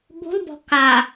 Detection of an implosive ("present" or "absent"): present